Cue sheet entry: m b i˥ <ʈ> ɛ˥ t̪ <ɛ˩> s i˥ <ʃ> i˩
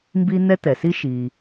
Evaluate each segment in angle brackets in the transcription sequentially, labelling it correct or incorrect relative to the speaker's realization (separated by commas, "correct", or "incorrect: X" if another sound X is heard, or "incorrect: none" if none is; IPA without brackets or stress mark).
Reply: incorrect: n̪, correct, correct